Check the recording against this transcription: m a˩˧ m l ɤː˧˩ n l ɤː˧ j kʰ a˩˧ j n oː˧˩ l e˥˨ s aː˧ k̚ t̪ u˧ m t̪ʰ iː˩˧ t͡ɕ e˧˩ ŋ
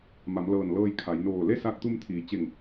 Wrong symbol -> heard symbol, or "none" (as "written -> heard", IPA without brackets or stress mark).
none